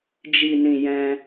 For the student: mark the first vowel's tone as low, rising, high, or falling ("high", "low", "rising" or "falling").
low